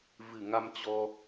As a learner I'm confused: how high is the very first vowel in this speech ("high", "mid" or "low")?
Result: high